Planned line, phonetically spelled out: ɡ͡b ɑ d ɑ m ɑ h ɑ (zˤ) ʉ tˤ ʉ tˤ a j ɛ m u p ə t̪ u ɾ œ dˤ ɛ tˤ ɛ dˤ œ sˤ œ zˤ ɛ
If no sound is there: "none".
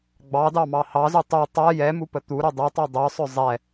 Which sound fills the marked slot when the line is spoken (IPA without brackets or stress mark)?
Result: z